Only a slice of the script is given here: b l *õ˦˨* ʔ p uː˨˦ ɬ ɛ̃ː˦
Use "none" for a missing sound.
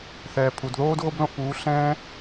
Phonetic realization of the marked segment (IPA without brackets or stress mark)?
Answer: õ˦˨